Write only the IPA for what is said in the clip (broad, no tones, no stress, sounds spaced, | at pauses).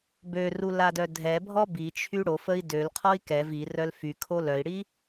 b ø r u l a d œ dʱ ɛ bʱ ɔ b i t͡ʃʰ y ɽ o f ə i̯ d ø l qʰ ɔ i̯ k ɛ v i r œ l f y kʰ o l œ i̯ ɽ i